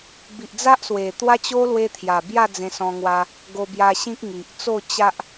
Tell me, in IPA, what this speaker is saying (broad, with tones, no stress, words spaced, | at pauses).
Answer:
bi˨ʔd͡za˦ʔswe˨˩ t̪wa˦t͡ɕo˦ lwe˦t̪ʰja˨˩ bja˥˧d͡zẽ˧sɔ̃˧ŋwa˧ | ɡo˧bja˧ ɕĩ˦k̚ŋi˨ʔ t͡so˥˧ t͡ɕa˦ʔ